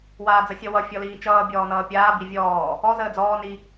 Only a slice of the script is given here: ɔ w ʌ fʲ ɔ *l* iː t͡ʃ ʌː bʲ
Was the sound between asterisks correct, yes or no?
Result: yes